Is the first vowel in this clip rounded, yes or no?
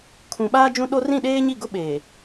yes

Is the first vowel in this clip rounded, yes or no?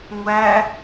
no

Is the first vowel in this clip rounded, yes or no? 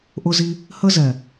yes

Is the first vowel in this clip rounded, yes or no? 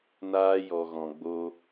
no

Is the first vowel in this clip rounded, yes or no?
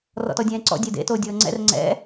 yes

